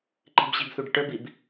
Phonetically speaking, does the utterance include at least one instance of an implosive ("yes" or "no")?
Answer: no